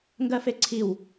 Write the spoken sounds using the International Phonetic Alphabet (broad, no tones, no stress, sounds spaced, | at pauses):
ŋ ɡ ɜ f e ǀʰ i w